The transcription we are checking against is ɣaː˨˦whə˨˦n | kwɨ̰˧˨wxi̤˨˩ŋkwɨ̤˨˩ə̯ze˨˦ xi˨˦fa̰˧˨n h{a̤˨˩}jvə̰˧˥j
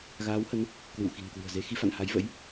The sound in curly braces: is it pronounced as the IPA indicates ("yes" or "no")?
no